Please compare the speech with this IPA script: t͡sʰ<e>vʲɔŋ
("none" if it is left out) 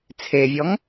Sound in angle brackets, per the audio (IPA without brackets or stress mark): e